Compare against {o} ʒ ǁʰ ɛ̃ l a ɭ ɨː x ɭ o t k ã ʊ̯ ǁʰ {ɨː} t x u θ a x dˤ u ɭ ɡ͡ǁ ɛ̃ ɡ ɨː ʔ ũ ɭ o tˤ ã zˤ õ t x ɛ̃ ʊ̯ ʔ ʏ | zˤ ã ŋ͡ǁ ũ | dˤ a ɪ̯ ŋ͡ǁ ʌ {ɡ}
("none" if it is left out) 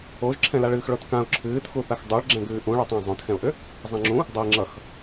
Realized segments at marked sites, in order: o, ɨː, x

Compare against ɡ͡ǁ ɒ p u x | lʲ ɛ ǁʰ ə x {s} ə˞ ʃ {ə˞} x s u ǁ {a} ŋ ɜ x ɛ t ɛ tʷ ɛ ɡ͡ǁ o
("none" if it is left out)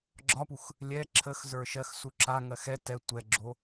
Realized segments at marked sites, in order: z, ɜ, a

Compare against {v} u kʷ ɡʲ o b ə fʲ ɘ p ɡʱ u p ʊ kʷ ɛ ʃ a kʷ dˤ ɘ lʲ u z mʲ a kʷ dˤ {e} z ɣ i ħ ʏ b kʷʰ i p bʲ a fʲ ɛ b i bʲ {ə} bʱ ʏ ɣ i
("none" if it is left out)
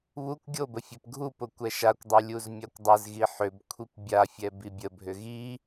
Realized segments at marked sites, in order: β, ɘ, ə

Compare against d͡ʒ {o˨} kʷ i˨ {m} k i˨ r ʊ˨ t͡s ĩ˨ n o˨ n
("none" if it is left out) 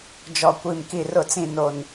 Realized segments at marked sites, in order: ɔ˨, m

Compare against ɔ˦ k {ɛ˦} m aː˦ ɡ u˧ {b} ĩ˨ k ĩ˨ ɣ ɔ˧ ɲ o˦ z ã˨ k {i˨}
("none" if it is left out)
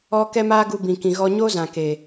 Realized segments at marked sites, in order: ɛ˦, b, e˨

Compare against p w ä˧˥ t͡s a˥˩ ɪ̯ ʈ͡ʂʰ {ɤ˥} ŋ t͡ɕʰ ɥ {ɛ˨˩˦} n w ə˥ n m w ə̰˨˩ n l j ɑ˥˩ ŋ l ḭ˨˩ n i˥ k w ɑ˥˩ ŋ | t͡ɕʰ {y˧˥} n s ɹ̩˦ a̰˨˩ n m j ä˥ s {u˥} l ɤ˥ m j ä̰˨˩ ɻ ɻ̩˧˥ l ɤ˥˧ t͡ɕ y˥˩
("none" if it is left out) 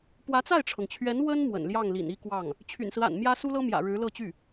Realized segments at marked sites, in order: ɤ˩, ɛ˧˥, y̰˨˩, u˥

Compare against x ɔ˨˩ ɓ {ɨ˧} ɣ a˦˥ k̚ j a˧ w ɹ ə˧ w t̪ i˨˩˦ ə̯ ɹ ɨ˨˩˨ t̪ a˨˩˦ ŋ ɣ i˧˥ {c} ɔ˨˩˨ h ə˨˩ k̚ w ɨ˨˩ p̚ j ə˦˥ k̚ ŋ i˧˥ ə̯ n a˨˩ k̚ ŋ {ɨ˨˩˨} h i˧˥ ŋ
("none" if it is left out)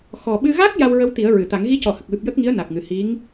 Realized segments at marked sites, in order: ɨ˧, c, ɨ˨˩˨

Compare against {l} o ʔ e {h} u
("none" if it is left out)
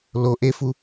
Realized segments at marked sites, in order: l, f

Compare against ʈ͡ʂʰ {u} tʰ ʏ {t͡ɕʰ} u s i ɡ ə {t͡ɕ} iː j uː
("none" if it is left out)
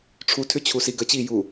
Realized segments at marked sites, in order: u, t͡ɕʰ, t͡ɕ

